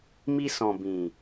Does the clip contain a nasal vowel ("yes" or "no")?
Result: yes